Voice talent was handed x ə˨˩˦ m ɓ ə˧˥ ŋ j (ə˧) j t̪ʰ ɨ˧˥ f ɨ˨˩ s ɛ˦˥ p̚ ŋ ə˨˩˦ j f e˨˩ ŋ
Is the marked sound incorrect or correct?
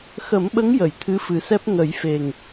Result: incorrect